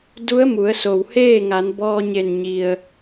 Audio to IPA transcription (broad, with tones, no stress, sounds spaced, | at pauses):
d u˧˥ ə̯ m u˩˧ ə̯ s o˩ w h eː˥˨ ŋ a˩˧ n b ɔː˧ ɲ e˧˩ n ɲ i˩ ə̯